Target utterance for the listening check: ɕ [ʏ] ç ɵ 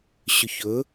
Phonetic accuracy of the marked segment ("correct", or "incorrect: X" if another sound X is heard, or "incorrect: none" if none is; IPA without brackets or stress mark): correct